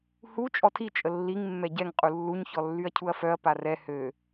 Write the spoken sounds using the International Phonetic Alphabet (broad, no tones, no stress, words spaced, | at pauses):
hu t͡ʃʼɔtʰi t͡ʃʼəlːiŋ mːɛɟɛŋ qʼulːuɲ çɔlːyɐ̯cʰuɐ̯fœɐ̯ parɛ hø